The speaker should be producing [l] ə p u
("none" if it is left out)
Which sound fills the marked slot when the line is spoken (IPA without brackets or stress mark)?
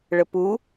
ɭ